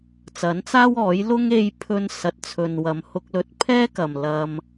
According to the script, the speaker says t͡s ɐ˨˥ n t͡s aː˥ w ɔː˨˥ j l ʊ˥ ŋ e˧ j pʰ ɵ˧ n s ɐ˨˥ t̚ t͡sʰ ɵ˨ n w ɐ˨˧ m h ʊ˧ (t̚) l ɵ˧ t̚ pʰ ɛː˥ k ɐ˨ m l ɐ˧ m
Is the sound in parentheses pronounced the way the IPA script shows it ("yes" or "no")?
no